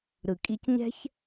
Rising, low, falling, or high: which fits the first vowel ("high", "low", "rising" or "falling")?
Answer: low